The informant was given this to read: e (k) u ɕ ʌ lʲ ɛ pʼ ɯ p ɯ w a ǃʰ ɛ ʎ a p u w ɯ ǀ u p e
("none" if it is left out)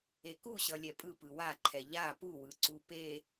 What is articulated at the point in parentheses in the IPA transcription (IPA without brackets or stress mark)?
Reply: k